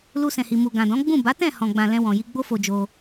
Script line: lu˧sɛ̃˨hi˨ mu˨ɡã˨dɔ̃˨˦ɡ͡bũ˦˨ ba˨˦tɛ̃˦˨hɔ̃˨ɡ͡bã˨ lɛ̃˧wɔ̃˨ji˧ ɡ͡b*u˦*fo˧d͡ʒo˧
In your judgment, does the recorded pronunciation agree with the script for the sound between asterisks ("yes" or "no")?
no